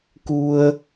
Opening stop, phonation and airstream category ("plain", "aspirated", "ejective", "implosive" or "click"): plain